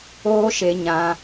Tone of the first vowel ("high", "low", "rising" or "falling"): high